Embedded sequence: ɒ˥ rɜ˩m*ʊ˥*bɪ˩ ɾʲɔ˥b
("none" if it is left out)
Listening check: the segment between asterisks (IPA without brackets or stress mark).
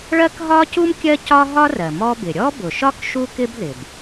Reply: ɔ˥